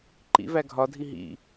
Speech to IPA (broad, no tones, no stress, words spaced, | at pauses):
ǃḭ væɡʱɒdʱi ɦḭ